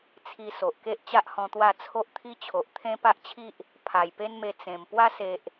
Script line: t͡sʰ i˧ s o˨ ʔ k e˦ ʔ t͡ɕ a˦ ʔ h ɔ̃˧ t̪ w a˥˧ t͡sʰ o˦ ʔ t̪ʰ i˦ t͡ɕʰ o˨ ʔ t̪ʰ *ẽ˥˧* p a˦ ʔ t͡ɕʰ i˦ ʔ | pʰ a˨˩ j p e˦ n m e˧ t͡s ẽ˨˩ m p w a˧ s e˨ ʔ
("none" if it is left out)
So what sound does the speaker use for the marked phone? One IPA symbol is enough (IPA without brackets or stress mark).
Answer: ẽ˦